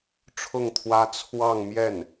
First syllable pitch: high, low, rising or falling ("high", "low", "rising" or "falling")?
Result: falling